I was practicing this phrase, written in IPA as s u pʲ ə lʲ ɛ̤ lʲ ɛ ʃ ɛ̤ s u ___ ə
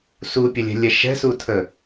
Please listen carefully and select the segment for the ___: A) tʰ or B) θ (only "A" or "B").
A